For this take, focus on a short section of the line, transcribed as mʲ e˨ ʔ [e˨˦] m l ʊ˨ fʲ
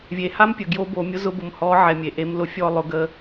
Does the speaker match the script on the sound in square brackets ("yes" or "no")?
yes